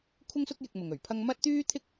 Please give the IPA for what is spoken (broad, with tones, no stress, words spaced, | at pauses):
kʷʰɪ˥ŋsʊ˥k̚jɪ˧k̚mʊ˨ŋ ɵ˨˩ɥpʰɐ˥ŋ mɐ˥t̚t̪yː˥t̪ʰɪ˥k̚